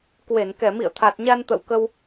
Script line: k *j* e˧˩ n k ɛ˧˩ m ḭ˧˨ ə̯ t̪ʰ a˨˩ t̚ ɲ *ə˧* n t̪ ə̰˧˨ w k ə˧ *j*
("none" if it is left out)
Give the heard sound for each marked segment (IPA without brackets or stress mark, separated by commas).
w, a˧, w